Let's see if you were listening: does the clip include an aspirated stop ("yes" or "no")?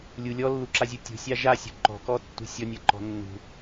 no